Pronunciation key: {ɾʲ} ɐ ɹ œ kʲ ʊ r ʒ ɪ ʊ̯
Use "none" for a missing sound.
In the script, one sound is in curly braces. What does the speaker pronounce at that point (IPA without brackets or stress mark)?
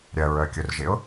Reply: ɾʲ